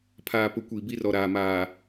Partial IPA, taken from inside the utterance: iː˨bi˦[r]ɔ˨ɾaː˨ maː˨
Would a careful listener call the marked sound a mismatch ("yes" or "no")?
no